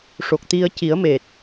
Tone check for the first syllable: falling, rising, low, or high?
low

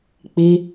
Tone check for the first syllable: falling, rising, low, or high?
high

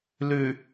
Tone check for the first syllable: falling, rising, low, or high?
low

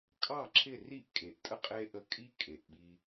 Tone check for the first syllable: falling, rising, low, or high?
falling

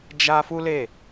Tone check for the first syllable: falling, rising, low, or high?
high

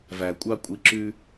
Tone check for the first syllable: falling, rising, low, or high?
low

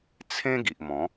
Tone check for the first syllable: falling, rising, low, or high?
high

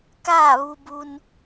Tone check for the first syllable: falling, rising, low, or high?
falling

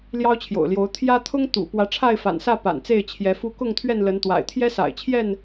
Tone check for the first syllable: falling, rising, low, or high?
high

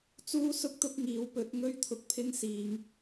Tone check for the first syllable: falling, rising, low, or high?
high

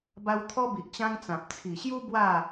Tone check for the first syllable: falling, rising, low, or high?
high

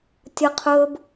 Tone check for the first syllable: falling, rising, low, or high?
high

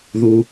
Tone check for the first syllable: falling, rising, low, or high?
low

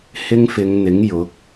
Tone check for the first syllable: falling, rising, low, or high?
high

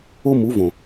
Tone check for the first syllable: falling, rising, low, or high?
high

